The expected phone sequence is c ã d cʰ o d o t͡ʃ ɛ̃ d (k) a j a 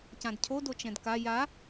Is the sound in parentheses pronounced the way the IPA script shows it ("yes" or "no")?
yes